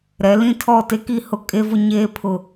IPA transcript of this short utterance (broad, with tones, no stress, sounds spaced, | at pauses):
ɾ ɛ˨˦ l ĩ˦ tʰ ɔ˦˨ t e˦ k i˦˨ h ʊ˦ kʼ e˦ v ʊ˦ ɲ eː˦ pʰ ʊ˨